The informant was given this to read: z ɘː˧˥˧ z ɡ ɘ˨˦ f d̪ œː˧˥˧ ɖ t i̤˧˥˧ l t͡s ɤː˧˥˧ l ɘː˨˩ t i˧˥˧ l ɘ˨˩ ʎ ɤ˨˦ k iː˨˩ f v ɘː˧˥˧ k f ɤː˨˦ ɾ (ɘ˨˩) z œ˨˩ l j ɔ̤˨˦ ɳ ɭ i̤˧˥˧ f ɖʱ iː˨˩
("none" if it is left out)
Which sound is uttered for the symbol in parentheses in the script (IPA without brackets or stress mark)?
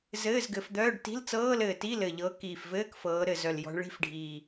ɘ˨˩